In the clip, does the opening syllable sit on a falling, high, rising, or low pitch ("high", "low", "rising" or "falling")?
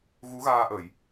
rising